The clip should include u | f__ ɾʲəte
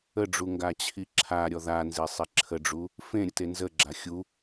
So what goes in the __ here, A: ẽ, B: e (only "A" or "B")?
A